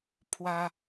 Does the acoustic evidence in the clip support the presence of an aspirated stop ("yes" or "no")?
yes